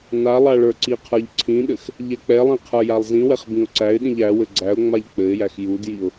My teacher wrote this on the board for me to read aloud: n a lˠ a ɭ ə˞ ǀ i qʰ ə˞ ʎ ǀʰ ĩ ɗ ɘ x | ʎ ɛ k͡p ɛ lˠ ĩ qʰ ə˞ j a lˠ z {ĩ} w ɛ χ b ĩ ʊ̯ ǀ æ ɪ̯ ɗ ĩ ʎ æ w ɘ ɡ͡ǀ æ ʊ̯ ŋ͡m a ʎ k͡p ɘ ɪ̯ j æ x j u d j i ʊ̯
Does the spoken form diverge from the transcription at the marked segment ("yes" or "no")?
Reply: no